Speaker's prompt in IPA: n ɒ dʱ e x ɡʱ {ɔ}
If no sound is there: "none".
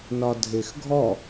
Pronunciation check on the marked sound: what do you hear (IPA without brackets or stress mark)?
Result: ɔ